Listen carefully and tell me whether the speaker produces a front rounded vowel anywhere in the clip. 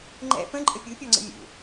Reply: no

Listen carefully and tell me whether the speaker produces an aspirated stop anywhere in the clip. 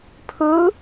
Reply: yes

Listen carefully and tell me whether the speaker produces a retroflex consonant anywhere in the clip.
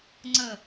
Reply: no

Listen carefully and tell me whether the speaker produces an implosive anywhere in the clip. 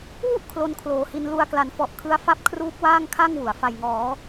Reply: no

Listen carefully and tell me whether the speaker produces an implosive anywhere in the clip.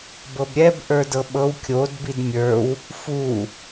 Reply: yes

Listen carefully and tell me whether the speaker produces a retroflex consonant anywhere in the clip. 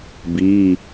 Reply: no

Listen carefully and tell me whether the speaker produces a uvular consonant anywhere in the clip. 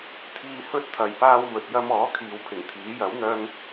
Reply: no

